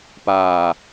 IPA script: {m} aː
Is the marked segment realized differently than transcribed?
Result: yes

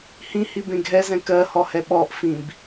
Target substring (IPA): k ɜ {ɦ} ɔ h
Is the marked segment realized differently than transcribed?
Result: yes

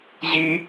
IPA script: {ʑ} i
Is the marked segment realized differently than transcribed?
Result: no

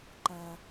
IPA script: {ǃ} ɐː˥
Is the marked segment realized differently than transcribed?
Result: no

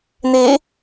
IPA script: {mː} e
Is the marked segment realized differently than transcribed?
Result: yes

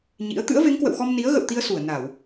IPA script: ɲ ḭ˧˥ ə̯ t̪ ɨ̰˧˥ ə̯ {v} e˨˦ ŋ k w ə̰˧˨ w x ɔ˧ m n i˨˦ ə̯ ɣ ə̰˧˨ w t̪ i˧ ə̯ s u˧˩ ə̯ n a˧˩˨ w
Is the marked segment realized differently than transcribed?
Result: no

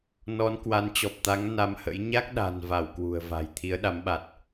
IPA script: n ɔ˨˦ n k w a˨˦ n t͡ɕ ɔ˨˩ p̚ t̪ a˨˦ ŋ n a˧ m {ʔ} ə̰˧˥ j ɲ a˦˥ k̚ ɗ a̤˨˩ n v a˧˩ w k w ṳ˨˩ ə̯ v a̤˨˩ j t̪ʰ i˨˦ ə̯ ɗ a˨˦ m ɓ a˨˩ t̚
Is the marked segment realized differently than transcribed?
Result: yes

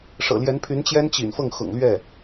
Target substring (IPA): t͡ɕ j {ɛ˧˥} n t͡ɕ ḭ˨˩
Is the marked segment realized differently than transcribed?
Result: yes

